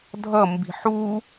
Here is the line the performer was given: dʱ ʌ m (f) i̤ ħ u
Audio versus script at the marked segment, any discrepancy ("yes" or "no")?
yes